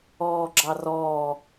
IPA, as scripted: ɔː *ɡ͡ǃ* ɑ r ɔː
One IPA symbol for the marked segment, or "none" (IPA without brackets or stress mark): ɡ͡ǁ